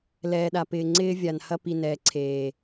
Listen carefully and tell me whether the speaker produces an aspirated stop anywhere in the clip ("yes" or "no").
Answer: yes